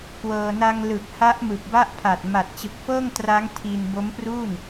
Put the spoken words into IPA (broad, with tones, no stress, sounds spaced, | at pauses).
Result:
k w ɤː˧ n a˧ ŋ l ɯ˨˩ k̚ h a˦˥ ʔ m ɯ˨˩ k̚ b a˥˩ ʔ pʰ a˨˩ t̚ m a˨˩ t̚ t͡ɕ ɯ˨˩ k̚ f ɤː˥˩ ŋ t r a˦˥ ŋ tʰ i˧ n b o˦˥ m p r uː˥˩ n